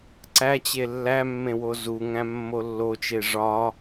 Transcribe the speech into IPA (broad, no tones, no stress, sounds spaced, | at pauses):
ǀ æ t͡ɕ e lː æ mː ẽ w o z u ŋ æ̃ mː o lː o t͡ʃ e ʐ ɒ